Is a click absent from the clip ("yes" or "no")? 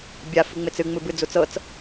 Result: yes